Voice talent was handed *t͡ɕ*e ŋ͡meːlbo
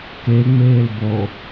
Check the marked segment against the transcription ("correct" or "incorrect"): incorrect